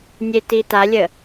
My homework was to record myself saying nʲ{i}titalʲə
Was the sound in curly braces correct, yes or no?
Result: no